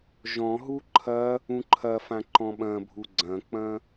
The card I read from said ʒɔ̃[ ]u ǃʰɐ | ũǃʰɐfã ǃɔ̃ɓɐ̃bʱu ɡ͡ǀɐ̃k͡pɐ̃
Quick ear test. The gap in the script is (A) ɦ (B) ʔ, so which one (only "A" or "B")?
A